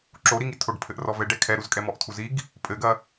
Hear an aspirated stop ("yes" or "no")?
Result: yes